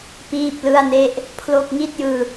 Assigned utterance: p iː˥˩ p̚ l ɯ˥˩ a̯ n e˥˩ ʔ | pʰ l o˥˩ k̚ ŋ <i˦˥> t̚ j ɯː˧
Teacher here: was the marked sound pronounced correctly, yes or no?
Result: no